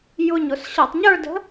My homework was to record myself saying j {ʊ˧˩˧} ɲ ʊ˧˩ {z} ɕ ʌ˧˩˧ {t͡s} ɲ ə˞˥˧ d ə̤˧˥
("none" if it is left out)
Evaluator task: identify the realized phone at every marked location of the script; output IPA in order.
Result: ʊ˧˩, s, tˤ

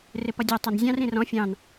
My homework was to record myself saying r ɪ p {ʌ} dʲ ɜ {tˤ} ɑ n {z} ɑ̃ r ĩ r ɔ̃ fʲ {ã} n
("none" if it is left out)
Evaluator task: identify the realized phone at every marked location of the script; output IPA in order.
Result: ʌ, tˤ, zʲ, ɑ̃

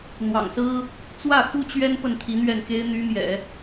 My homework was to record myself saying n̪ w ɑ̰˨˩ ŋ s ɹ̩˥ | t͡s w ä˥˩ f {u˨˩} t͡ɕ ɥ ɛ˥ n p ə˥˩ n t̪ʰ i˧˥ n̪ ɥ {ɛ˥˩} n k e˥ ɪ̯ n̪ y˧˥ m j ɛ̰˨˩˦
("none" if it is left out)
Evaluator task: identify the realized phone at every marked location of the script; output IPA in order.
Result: u˥, ɛ˥˩

